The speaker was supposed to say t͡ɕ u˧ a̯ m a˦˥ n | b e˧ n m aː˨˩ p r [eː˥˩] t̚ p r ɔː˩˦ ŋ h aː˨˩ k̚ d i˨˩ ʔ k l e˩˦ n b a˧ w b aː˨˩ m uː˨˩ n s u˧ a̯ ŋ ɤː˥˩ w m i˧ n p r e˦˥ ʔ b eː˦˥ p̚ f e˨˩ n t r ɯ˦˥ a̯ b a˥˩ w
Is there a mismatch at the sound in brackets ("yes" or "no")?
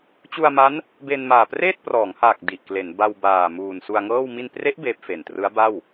no